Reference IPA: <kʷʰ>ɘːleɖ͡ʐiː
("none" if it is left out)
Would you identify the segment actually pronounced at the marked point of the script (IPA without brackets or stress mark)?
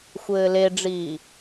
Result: xʷ